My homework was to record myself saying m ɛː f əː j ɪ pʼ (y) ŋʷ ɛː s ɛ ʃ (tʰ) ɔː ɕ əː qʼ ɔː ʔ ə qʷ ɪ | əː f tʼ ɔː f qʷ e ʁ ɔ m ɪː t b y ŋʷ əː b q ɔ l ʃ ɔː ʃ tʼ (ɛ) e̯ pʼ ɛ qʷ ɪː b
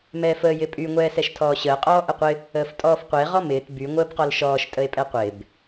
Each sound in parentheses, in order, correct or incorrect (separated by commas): correct, correct, incorrect